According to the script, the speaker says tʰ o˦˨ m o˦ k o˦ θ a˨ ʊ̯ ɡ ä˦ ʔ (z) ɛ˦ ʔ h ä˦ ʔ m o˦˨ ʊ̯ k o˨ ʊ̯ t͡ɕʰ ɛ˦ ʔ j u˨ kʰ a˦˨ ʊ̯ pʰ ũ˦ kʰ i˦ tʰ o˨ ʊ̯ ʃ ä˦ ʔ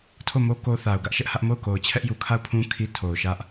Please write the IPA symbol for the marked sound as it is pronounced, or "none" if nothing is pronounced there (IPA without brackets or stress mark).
ʃ